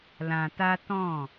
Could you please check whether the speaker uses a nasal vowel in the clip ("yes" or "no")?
yes